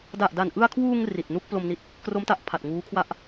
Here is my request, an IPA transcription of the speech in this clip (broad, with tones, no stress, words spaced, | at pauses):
da˨˩ʔda˨˩nʔɯ˧a̯kʰwuː˧ŋ ri˨˩t̚ nu˥˩k̚plo˧mni˦˥t̚ | kro˦˥mta˨˩ʔpʰa˨˩t̚ ŋuː˦˥kʰwa˥˩ʔ